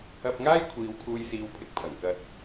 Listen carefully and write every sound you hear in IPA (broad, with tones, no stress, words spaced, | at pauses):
ɐ˧p̚ŋaː˥j kʷʰiː˨˧wkʰuː˧jsiː˨˥wpʰɪ˨k̚ pʰɐ˨˩ŋkɐ˧t̚